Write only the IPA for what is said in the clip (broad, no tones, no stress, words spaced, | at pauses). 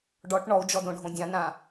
ɖɔʈ ɳɔu̯d͡ʒɔdõɖʱõ dʲãnã